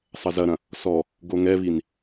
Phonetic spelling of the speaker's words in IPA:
sˤɐzɐɾɐ̃ | sɔ | ɡoŋɛβin

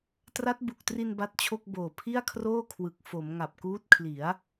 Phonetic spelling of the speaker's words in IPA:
tra˦˥t̚bu˨˩k̚tri˧n ba˦˥t̚t͡ɕʰo˥˩k̚boː˨˩ pʰi˥˩a̯kʰroː˥˩kʰwɯ˨˩k̚ fo˩˦m ŋa˨˩p̚kuː˦˥t̚kʰli˩˦a̯

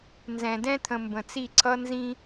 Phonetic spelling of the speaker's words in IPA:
nzɛ̃˨dɛ̃˦t̪ʰə̃˨ mbə̃˨t͡si˦˨ǀʰʌ˦ nzĩ˦

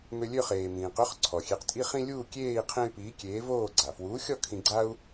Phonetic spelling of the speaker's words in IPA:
mø˧ lʲø˥˧χeː˩mĩː˩ qø˨˥χ ǀʰɔ˩xʲe˨˥q tʼi˥χĩ˥ lʲuː˥˧kʲeː˥˧i̯ qʰẽ˥y̯ piː˨˥kʲeː˨˥ voː˥˧ ɡ͡ǀa˩fwuː˨˥xʲɔ˥˧kʰĩ˧ ɡ͡ǀa˥u̯

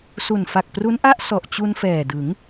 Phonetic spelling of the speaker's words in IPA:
su˨˩nfa˨˩k̚pru˦˥nʔa˥˩ʔ sɔ˨˩ʔt͡ɕu˧n fɛː˨˩dɯ˩˦ŋ

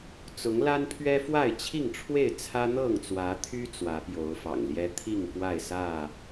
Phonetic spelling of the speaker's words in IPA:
t͡sʊ˨˦ŋ la˦npʰɥɛ˦ fwa˥˨ɪ̯t͡ɕʰi˥˨ŋʈ͡ʂʰwe˥˨ɪ̯ t͡sʰä˦n̪ɤ˥˨ŋt͡swä˨˦t̪ʰy˦ t͡swä˨˦pjo˨˦ʊ̯fɑ̰˨˩ŋljɛ˦ t̪ʰi˥˨ŋkwa˥˨ɪ̯sä˥˨

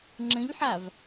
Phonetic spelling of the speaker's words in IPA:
ŋ͡ǁə̃ʎħav

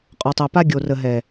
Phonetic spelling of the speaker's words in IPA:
qʼɔ˨tˤø˨ pa˦ ɡʲo˨rə˨ɦɛ˨

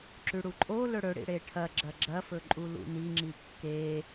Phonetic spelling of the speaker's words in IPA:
ǁʉɽuǃʼolɵ ɽɵɽḭ ɽeʈʰɐɡ͡ǁɐ ɡ͡ǁɐfɵ ǃʼulṵniŋ͡ǁi kːe

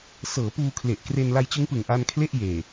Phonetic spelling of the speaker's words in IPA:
sɤː˩˦puː˧ kʰle˨˩ʔkre˧n la˧jt͡ɕɯ˦˥ŋpɯ˨˩ŋ ʔa˧nkʰle˥˩ʔjeː˨˩

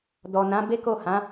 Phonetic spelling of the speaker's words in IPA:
dɔ˨nã˨˦ be˦ko˦˨hã˨˦

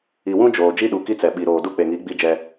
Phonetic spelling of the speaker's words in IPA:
i˨wũ˦ d͡ʒoː˨ d͡ʒi˦ɗu˨ ki˦t͡sɛ˨ɓi˨ɾoː˨ du˦k͡pe˨ŋi˨˦ ɡ͡bi˦d͡ʒɛ˦

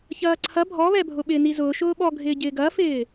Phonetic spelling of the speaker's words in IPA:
çɐːǀʰɐ bʱɔβɛbʱʊ ɓɪːnizʊː ʃʊːɓɔɡʱɪː ɟɪːɡɐːfɪː

